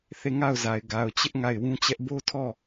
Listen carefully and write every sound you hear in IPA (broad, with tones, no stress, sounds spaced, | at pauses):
θ e˦˨ ŋ a˦˨ ʊ̯ z a˨ ɪ̯ ɡ a˨ ʊ̯ t͡ɕ ɪ˦ ʔ ŋ a˦˨ ɪ̯ w ũ˦ t͡ɕ ɛ˦ ʔ b o˦ tʰ ɔ˦˨